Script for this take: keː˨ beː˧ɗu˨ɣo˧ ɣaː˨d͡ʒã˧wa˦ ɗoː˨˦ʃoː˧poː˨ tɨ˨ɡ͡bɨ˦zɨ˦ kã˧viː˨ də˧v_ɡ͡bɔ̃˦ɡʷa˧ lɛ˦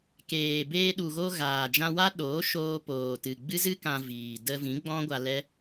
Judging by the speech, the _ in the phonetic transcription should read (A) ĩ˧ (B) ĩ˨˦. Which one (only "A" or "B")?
B